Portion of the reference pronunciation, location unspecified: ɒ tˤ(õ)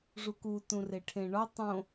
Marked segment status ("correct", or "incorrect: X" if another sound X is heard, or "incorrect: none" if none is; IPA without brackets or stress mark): correct